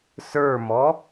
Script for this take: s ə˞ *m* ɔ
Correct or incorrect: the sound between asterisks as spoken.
correct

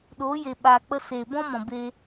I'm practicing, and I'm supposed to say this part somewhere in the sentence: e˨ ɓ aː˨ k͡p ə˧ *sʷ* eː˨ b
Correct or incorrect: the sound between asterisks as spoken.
incorrect: s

